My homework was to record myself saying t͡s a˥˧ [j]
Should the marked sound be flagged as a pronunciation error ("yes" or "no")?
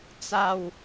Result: yes